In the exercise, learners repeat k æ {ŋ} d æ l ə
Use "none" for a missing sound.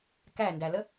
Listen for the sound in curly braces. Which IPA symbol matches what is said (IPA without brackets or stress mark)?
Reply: n